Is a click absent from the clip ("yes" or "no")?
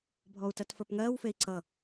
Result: no